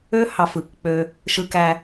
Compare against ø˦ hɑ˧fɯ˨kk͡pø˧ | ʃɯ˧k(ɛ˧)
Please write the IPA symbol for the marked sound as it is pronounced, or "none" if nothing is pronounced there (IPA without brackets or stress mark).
æ˧